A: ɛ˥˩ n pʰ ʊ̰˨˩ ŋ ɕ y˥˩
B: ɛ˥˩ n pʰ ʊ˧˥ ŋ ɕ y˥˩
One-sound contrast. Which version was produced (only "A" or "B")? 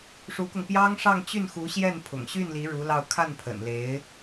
A